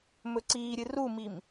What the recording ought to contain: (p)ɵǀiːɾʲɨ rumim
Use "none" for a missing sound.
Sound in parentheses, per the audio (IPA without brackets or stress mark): m